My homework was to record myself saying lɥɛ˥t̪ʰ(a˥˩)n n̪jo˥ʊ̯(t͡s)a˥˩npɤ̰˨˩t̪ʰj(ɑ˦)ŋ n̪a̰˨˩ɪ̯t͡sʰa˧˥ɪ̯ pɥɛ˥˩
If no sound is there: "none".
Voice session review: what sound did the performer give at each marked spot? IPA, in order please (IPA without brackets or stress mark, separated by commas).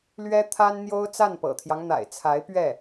a˥, t͡s, ɑ˦